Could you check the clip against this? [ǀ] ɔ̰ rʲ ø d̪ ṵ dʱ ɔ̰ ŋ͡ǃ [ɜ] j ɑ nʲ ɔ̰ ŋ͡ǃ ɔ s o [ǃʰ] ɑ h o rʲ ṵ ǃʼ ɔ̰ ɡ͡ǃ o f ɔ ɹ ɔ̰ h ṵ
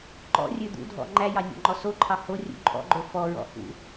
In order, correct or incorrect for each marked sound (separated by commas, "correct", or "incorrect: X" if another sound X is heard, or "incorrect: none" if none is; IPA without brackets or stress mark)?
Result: incorrect: ǃ, incorrect: æ, correct